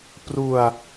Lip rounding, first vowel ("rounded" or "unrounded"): rounded